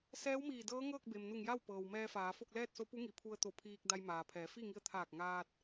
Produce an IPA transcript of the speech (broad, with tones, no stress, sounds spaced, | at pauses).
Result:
s ɛː˧˥ w m iː˧˩ d ɤː˧˥ ŋ ɤː˥˨ k̚ b e˩ m n u˧˩ ŋ j a˥˨ w p ɤː˩ w m ɛː˧ f aː˩˧ f o˥˨ k̚ l ɛː˥˨ t̚ s o˧˥ p u˧˥ ŋ i˩˧ pʰ u˧ ə̯ t̪ o˧˩ pʰ iː˧ k̚ d a˧ j m aː˩ pʰ ɛː˩˧ f i˥˨ ŋ i˧ ə̯ t̪ʰ aː˧˩ k̚ ŋ aː˧ t̚